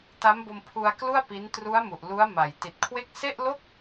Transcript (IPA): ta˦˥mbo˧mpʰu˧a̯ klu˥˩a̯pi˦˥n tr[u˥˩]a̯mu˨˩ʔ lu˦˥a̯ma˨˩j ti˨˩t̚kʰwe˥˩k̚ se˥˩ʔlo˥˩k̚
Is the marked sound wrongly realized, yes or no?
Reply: yes